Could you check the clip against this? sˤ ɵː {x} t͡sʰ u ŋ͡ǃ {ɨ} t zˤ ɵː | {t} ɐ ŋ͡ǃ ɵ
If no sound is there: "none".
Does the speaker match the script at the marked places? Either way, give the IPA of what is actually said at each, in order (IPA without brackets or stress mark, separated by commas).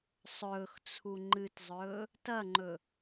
x, ɨ, t